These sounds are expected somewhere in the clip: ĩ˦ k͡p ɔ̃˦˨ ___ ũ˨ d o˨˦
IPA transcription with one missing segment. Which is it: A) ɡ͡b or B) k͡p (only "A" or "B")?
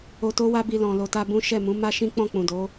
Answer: B